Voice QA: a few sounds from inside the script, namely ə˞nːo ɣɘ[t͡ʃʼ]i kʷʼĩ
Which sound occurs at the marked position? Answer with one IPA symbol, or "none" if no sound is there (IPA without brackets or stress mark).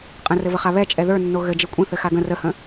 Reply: d͡ʒ